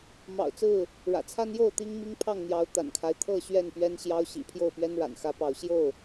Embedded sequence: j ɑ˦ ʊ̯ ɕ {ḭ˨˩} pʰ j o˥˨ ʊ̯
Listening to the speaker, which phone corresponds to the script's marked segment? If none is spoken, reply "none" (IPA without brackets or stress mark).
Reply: ḭ˨˩